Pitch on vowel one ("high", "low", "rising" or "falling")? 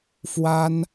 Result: high